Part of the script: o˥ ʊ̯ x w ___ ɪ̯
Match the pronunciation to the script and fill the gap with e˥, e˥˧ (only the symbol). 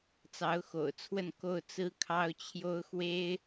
e˥